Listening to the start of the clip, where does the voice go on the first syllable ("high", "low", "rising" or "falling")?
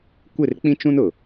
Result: falling